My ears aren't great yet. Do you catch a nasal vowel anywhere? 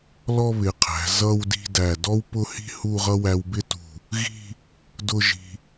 no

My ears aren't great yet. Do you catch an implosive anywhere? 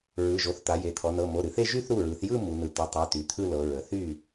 no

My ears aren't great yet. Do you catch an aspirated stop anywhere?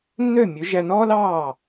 no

